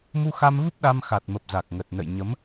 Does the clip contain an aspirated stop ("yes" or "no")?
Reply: no